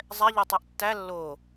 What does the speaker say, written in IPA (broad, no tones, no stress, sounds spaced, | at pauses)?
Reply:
zˤ ɛ ʎ o tˤ ɛ ʔ tː æ lː o